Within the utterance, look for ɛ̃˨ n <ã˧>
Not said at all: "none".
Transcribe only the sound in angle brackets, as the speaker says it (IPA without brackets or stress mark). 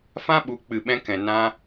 ã˧